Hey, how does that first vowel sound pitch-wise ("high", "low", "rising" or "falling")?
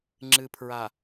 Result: low